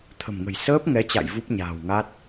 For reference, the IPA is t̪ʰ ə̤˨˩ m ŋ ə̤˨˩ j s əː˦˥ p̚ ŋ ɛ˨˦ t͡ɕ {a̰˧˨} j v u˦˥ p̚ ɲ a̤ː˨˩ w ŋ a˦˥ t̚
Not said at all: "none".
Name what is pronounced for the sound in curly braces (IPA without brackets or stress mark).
a̰˧˨